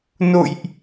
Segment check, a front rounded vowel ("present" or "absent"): absent